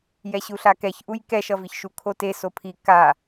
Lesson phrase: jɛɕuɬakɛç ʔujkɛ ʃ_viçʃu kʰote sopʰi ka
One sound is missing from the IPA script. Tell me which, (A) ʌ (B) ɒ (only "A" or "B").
A